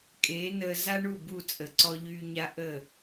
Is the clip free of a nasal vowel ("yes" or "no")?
yes